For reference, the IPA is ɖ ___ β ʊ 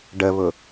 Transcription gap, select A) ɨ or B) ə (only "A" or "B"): B